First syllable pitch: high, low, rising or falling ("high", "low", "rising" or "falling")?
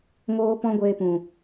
high